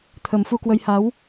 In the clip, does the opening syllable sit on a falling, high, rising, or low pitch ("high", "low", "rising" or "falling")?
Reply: low